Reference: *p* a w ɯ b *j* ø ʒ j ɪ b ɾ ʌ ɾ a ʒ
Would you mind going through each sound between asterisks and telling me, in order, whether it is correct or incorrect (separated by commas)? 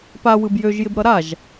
correct, correct